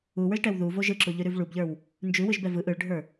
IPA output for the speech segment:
u w ə˞ ʒ ʈ ɛ w ð u v o ʒ ɯ ǁ u ʎ ʉ ɾ ʉ v ɭ u b ʎ ə˞ w | n d͡ʒ ʉ w ɯ ʒ b ɛ v ɯ ʔ ɯ ɭ ɖʱ ə˞

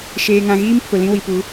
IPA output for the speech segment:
ʃ eː˨ ŋ ã˨ ɣ iː˦ m pʰ ʊ˨ l ĩ˦ w i˨ p u˨˦

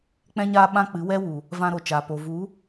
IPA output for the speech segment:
k͡p ɛ̃˧ ɲ aː˧ ɓ ã˧ k͡p ɨ˨˦ w ɛ˦ w u˨ | v ã˧ ɾ o˨ t͡ʃ aː˨ p o˨ v u˨˦

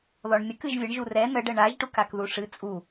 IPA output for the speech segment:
ð ɔ ɳ mʲ ə k ɨ ʒ vʲ ə ɳ ʒ u r ɛ n ə ɖ ə ɳ a ʒ ʈ u k a k ð u ʂ ɨ t͡sʼ u

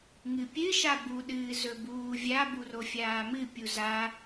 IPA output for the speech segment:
ŋ ɨ pʲ ɨ ʃ a b u ɗ ɨː z ɵ b uː vʲ a b u r o fʲ aː m ɨ pʲ u z a

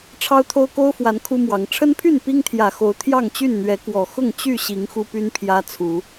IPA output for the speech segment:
ʈ͡ʂʰ ɑ˦ ʊ̯ t̪ʰ o˦ ʊ̯ k o˦ ʊ̯ f w a˨˦ n kʰ u˦ m w ɑ˨˦ ŋ ʈ͡ʂʰ ə˦ n pʰ y˥˨ n p i˦ ŋ t̪ʰ j ä˨˩ x o˨˦ ʊ̯ t̪ʰ j ɑ˥˨ ŋ t͡ɕ y˥˨ n n̪ ɥ ɛ˨˦ k w ɔ˨˩ x ʊ˥˨ ŋ t͡ɕ y˥˨ ɕ i˨˦ ŋ x u˦ p y˦ n pʰ j ä˦ t͡sʰ u˨˦

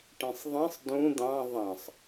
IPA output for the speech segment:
ʈ ĩ sˤ ðˤ ĩ sˤ d ũ d̪ ɑ̃ ðˤ ɑ̃ sˤ

